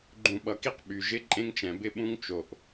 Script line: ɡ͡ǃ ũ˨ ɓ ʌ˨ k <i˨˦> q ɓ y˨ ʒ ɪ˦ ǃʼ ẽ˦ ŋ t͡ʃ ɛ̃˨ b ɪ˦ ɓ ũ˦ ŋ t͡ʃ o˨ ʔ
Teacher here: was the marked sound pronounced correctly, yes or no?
no